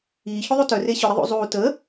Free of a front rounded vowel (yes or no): no